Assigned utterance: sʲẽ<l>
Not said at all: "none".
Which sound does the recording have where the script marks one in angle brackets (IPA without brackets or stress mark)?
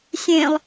lˠ